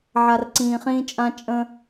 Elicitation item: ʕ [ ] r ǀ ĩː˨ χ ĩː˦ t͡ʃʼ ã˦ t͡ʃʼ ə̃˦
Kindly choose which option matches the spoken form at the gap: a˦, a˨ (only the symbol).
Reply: a˨